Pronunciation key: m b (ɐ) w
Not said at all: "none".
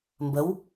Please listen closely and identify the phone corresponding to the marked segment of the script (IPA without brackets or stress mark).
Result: ə